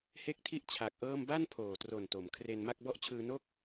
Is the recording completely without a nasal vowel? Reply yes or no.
yes